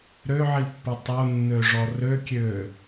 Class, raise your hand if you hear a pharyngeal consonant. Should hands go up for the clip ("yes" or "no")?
yes